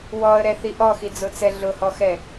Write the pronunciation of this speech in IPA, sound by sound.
w ɔ ə̯ ɾ ɛ θ i ʔ ɔ x i d͡z ʊ t͡s ɛ ɮ ʊ h ɔ x ɛ

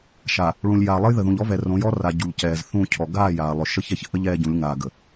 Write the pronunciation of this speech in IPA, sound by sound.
ʃ a˨ | ɭ ũ˨ lʲ j a˨ lˠ ə˦ j ð ə˨ ð ũ˨ ʎ ɔ˦ v ɛ˨ r õ˨˦ j ɔ˦ r a˨ ɟ u˨ ʎ c ɛː˨ z θ ũ˦˨ cʰ ɔ˨ ɡ aː˦˨ j aː˨ lˠ ʏ˨ ʃ ə˦ ç ɛ˨ ç ʔ ə˦ ʎ ɛː˦ ɟ ũ˨˦ lʲ ŋ aː˨ ɡ ə˨

